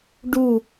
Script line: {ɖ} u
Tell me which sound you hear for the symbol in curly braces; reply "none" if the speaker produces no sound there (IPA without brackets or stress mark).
ɖ